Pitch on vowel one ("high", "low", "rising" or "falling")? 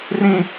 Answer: high